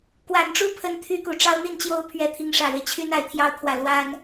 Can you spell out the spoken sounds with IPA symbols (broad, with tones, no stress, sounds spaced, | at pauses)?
k w a˨˩ n ʈ͡ʂ u˥ pʰ ə˧˥ n t̪ʰ y˥ k u˨˩ ʈ͡ʂ ɑ˥ ʊ̯ n̪ i˥˩ n t͡ɕ j o˥ ʊ̯ pʰ ɥ ɛ˧˥ t̪ʰ i˧˥ ŋ ʂ ä˨˩ ɻ e˦ ɪ̯ t͡ɕʰ y˥ n a˧˥ ɪ̯ t̪ʰ j ɑ˥˧ ʊ̯ kʰ w ä˥˩ l w a˥ n